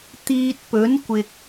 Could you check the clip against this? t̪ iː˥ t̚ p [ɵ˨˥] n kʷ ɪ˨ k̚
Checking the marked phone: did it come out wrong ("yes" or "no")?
no